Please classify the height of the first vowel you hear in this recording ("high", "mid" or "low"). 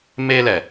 mid